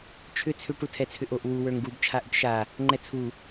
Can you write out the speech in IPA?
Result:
t͡ʃʰʏ t͡sʰʏ ʈutʰɛt͡sʰʏʔoʔ wu wə˞ŋɡub t͡ʃʰaʔʏʈʃa | ŋ͡ǃɛt͡sʰu

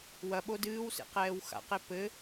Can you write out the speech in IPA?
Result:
wɐɓo dɨːwsḛqɛːw xa̰qe pɘ

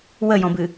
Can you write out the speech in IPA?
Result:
wəjɔ̃bɨ

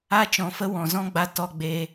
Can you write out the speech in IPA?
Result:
a˦t͡ʃɔ̃˨˦fə˦ wɔ̃˨zɔ̃˦ɡ͡ba˧ tɔ˧ɡ͡be˧

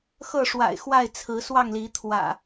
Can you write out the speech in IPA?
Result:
xɤ˥˨ʂwa̰˨˩ɪ̯ xwa˥˨ɪ̯t͡sʰɹ̩˨˦swɑ˥˨ŋli˨˦ t̪ʰwä̰˨˩

